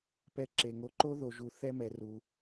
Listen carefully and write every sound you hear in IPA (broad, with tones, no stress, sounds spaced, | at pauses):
p ɛ˦ ǁ e˨ ŋ o˨ ǃ o˦ ð o˨ ʒ u˨ θ ɛ˦ m ɛ˨ r u˨